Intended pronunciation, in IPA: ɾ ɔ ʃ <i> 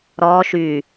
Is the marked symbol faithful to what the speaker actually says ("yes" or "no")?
no